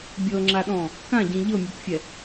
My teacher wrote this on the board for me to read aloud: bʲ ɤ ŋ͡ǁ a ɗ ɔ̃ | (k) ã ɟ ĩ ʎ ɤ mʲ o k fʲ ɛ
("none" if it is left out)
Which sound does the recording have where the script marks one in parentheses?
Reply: k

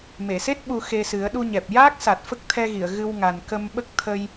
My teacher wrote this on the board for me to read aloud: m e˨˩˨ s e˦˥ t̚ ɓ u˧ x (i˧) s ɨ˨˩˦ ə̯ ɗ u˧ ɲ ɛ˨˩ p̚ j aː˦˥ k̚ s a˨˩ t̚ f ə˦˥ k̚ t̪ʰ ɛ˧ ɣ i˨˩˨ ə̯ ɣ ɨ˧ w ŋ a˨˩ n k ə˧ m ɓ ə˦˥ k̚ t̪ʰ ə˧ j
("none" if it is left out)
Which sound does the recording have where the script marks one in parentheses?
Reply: e˧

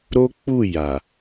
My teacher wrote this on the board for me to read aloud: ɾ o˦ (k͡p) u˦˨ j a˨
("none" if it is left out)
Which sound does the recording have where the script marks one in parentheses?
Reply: k͡p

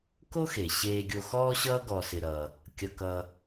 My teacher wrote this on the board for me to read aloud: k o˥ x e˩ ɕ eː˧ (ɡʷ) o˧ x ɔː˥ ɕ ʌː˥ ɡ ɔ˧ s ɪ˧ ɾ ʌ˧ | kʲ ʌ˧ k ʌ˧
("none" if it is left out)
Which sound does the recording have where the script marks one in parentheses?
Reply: ɡʲ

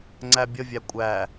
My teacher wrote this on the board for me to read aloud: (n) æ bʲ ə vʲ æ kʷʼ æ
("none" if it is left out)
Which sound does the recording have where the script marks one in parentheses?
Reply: ŋ͡ǀ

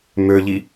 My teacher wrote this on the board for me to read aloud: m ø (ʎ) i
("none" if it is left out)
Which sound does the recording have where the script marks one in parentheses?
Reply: ʎ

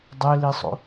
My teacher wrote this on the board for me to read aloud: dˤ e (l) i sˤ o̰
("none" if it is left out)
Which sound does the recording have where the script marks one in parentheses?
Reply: l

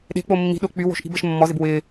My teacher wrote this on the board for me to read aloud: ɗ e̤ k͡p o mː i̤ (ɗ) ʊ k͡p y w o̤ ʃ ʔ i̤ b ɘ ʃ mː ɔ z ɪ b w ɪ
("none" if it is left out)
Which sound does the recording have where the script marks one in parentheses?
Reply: ɗ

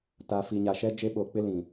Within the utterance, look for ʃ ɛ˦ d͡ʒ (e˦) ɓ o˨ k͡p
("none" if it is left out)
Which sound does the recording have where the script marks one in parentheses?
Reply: e˦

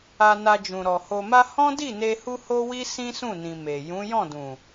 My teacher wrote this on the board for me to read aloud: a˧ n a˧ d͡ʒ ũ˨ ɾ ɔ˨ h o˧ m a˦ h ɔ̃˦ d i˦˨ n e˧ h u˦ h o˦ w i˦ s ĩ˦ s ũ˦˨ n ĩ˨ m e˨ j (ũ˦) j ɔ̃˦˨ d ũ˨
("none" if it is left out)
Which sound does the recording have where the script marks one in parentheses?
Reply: ũ˨˦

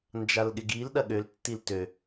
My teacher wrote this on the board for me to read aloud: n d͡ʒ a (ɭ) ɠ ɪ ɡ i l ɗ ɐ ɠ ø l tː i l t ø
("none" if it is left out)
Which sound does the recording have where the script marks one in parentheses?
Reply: l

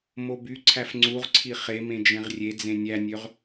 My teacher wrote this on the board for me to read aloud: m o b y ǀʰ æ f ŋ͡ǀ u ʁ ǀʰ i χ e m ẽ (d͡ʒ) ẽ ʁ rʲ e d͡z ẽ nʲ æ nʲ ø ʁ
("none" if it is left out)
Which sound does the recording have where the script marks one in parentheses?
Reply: d͡ʒ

